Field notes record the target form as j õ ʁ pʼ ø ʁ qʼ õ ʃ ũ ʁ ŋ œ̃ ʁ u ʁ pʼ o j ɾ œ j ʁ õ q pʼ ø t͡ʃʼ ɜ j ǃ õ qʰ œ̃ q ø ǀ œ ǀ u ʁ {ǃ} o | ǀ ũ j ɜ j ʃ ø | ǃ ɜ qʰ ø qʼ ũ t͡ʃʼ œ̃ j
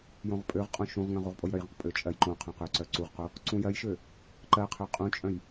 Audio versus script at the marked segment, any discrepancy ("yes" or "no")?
yes